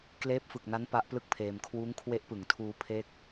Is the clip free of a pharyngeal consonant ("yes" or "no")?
yes